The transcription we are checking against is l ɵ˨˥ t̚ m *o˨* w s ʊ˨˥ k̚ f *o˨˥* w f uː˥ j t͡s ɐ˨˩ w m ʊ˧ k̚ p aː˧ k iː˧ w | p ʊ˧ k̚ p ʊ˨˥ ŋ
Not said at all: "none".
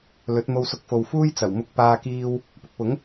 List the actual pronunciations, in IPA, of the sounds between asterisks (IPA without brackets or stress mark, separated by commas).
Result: o˧, o˨